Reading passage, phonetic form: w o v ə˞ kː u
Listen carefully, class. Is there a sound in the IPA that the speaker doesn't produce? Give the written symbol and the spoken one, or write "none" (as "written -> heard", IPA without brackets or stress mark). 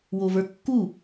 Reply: none